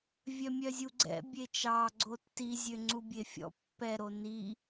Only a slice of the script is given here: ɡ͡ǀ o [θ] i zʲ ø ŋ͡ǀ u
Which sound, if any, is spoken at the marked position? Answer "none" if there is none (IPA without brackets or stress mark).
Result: tː